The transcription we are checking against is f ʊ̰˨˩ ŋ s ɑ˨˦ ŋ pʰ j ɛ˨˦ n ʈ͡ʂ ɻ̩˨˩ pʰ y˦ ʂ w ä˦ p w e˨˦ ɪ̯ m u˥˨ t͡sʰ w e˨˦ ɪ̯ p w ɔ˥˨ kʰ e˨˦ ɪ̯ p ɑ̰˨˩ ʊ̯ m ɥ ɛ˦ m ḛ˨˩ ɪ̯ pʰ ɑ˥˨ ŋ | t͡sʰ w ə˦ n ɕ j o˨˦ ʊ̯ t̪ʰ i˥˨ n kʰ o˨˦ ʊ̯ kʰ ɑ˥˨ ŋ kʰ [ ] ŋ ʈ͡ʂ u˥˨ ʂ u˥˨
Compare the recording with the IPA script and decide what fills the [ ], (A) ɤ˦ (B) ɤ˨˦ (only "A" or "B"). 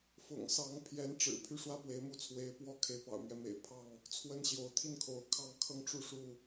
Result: A